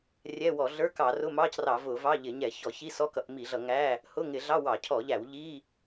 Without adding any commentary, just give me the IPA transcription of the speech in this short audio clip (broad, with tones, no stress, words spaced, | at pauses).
rʲɛ˧˥˧wɔ˧˩˧ ɮə˞˧˥˧kɑ˧˩˧rʊ˧˥˧mɑ˧˥˧c rɑ˧˩˧vʊ˧˩˧vɑ˧˥˧ʎɪ˧˩˧ ɲɛ˧˩˧çɔ˧˩˧çi˧˥˧sɔ˧˥˧ kʌ˧˩˧ʔmi˧˩˧ɮʌ˧˩˧ŋæ˧˥˧ | hʊ˧˥˧ŋɪ˧˩˧ɮɑ˧˥˧ wɑ˧˩˧cʰɔ˧˩˧ʎæ˧˩˧w ʎi˧˥˧